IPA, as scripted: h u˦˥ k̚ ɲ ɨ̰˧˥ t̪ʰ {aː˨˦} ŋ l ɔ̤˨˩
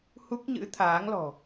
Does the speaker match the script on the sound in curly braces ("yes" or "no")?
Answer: yes